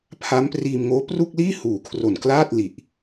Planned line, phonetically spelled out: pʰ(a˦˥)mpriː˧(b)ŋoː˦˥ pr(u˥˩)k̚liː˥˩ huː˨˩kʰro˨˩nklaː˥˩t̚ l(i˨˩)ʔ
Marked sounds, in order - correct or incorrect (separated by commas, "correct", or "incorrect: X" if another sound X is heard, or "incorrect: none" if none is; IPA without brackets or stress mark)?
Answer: correct, incorrect: m, correct, correct